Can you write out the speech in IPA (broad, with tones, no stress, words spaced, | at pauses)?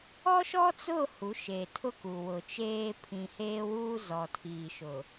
ɔ˦ʃɔ˦t͡sʊ˦˨ hu˨˦ʃe˨tʰʊ˦ku˨ wʊ˨t͡ʃeː˦ pʰĩ˨heː˦wuː˦ zɔ˨tʰiː˨ ʃʊ˨